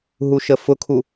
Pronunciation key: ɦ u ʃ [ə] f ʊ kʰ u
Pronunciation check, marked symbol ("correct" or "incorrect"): correct